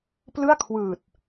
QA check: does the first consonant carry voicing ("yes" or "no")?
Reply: no